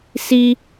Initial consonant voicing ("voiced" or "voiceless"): voiceless